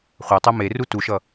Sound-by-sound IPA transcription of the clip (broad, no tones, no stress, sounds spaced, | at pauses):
χʷ a tˤ ɜ m e r u t u ʃ ʌ